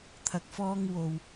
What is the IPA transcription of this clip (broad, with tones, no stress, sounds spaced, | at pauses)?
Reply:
t̪ʰ ɐ˨ k̚ f ɔː˧ ŋ w o˨ w